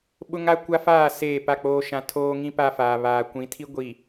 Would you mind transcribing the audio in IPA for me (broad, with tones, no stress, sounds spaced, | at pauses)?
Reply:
ɓ ʊ˦ ŋ a˦ kʷ a˦ f aː˦˨ s eː˦˨ p a˦˨ k͡p oː˦ ʃ ã˦ tʰ oː˦ ŋ ĩ˦ p a˦ f aː˨ β aː˨ kʷ ĩ˨˦ tʰ i˦ ɡʷ i˨